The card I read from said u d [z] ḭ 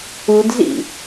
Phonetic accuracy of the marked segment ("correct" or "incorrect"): correct